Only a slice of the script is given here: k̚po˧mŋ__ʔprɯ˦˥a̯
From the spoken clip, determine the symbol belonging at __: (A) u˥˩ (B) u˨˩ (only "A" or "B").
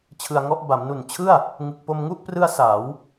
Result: A